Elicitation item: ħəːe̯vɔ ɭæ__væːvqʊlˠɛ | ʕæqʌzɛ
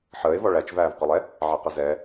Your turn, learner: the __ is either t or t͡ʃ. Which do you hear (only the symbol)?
t͡ʃ